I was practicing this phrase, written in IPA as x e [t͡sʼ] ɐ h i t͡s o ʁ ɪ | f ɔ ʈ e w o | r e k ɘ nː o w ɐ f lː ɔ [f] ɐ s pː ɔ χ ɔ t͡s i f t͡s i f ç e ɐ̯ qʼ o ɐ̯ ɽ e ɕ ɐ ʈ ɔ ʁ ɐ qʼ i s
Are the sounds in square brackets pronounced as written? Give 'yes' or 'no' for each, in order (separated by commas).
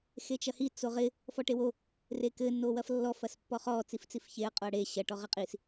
no, yes